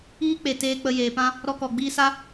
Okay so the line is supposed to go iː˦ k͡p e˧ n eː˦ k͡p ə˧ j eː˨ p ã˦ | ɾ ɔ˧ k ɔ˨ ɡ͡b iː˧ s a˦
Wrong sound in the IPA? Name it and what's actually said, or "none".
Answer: n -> t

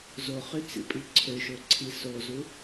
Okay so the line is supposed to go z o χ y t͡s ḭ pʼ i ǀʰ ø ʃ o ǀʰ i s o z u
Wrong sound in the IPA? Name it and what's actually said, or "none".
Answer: none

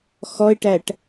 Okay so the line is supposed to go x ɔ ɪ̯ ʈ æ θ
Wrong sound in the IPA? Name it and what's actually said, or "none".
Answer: θ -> ʈ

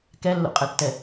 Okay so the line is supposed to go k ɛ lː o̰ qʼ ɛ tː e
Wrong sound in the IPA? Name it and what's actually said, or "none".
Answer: e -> ɛ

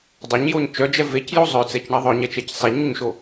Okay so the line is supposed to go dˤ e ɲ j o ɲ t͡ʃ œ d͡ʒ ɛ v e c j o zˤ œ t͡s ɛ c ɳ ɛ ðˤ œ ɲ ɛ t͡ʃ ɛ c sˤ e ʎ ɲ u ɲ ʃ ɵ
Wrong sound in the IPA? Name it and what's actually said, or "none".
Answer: ɵ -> o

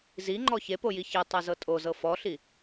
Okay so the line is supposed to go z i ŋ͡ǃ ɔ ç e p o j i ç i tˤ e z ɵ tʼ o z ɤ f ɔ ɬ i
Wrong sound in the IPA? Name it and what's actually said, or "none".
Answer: ɵ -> ɤ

